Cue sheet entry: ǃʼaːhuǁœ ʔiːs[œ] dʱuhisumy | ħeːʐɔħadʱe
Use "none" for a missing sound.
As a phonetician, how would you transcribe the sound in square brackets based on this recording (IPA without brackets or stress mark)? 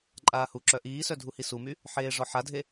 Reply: œ